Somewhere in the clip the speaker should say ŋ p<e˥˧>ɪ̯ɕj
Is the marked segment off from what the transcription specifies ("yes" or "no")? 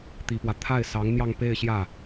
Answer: no